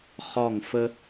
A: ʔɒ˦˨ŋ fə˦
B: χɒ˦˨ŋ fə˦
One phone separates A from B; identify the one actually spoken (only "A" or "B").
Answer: B